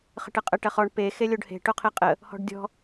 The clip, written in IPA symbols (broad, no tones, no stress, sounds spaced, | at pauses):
χ ə̤ ʈ ə qʼ ə ʈ ɐ χ ɔ ɳ p e x e lʲ o ɖ h e̤ ʈ o qʰ e qʼ ə | h ɔ̤ ɖ dʲ ɔ̤